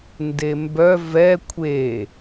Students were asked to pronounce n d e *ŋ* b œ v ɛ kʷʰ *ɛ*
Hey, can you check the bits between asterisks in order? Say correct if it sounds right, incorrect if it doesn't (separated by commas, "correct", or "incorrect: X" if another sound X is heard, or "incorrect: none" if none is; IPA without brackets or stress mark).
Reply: incorrect: m, incorrect: e